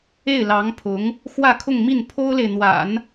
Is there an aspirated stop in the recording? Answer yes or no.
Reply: yes